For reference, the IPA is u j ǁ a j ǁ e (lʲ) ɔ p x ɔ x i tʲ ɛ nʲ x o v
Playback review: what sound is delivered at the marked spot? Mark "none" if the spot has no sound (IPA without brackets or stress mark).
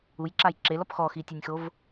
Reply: l